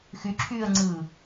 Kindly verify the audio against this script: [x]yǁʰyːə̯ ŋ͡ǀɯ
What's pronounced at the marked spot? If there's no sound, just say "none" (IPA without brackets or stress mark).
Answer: x